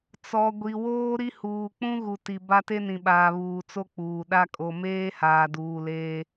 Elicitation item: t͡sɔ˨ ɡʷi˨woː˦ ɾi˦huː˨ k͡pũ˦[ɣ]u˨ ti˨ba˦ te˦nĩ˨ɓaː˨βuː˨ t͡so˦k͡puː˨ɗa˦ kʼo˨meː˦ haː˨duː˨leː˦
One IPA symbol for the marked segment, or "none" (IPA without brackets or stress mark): ɣ